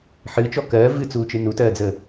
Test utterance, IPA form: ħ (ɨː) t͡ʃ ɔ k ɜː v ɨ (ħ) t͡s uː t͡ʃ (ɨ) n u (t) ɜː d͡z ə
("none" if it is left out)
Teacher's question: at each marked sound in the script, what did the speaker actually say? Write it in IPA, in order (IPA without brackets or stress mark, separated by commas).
ɨː, none, ɨ, t